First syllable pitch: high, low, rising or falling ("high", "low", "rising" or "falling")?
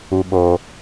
high